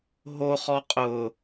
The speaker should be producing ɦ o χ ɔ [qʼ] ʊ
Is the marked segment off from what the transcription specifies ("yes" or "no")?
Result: no